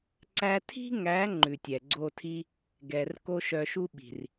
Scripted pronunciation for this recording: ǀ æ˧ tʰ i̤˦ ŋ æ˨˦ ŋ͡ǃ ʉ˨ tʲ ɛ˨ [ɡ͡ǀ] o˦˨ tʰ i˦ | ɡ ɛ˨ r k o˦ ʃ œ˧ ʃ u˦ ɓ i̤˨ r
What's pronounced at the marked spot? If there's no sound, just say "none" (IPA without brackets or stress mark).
ɡ͡ǀ